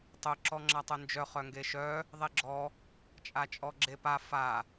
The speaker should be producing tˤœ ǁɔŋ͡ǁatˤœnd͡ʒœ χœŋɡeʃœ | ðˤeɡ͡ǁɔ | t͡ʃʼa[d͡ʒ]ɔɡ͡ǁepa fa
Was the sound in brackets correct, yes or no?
no